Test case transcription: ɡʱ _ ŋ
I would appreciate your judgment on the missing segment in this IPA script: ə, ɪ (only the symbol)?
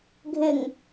ɪ